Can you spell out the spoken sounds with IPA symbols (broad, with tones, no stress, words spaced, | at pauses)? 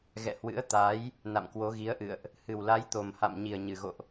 ɣɛ̰˧˨hwɨ̰˧˥ə̯ t̪a˨˦j | na̰˧˨mkwo˨˦ɣi˨˦ə̯ʔɨ̰˧˨ə̯ʔ | hɨ˨˩wla˨˦jt̪o˨˩mha̰˧˨m ɲi˨˩ə̯ɲɨ˨˩ɣo̰˧˨ʔ